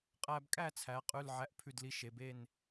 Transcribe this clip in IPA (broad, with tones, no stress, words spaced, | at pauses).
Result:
qʼæ˧bkʼæ˥˨t͡sʰæ˩˧ qʼʉ˧˥˧lʕæ˧˥˧ʔpʰʉ˥˨dli˧ ʃe˩˧be˥˨n